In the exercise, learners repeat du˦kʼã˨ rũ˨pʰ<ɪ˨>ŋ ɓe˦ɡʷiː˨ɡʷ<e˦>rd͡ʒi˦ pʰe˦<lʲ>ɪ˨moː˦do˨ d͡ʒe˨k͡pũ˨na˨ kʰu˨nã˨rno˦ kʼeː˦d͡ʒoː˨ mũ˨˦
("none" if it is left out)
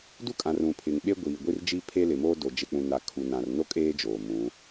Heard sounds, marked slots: ɪ˨, i˦, l

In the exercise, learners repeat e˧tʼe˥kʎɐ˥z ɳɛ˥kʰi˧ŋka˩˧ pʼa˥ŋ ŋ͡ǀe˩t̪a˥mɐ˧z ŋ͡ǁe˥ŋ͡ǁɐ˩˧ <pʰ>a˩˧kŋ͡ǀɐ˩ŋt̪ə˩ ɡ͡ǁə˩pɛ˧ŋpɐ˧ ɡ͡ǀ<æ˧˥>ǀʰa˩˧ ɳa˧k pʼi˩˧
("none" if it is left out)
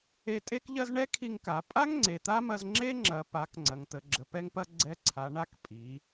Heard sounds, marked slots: p, ɛ˧˥

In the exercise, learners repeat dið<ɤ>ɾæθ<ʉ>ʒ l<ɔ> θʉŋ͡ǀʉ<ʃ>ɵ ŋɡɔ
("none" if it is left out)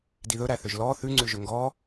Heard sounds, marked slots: ɵ, ø, ɔ, ʒ

